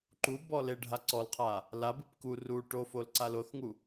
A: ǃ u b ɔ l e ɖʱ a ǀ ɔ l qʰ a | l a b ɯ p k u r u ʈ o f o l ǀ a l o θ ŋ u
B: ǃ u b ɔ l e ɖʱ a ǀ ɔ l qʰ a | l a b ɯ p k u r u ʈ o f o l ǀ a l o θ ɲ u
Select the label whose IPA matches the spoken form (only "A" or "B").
A